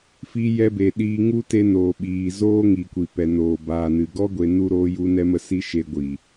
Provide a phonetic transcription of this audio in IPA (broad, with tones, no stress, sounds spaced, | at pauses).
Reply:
f i˧ j ɛ˧ b e˨ ɗ iː˧ ŋ u˦ t e˧ n oː˨ ɓ iː˨ z oː˦ ŋ i˨ kʷ i˨ p ɛ˨ n oː˨ b aː˨ n ɨ˨ ɡ ɔ˦ ɡʷ e˧ n u˦ ɾ oː˦ j u˦ n ɛ˦ m ə˦ s i˦ ʃ e˧ ɡʷ iː˨